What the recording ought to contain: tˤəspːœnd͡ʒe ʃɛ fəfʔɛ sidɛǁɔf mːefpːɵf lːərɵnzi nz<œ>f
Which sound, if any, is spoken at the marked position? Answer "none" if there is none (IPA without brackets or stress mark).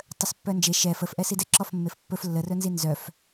œ